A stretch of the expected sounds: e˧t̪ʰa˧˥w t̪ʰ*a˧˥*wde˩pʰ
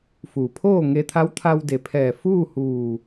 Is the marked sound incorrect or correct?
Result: incorrect: a˧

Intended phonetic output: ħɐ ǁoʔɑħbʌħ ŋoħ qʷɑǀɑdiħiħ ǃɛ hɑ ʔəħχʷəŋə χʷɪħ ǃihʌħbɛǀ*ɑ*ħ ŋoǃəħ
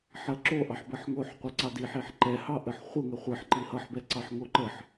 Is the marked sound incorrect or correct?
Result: correct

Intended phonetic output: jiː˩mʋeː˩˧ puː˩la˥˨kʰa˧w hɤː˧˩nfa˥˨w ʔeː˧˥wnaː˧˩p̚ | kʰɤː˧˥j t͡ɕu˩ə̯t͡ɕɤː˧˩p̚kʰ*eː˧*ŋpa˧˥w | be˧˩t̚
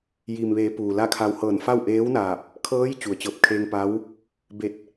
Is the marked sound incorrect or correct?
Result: correct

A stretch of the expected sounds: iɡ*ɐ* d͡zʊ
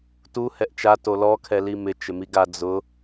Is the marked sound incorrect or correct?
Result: incorrect: a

